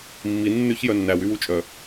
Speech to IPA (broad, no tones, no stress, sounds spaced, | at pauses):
mː i nː ʉ ç j œ nː æ w y w u t͡ʃʼ œ